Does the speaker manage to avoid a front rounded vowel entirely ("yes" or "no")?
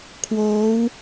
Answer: yes